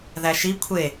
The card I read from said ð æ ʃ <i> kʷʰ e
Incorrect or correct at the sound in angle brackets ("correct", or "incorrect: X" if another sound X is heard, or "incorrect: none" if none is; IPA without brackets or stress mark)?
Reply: correct